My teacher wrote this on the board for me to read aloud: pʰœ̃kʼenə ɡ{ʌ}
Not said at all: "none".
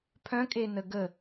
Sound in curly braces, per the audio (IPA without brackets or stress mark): ə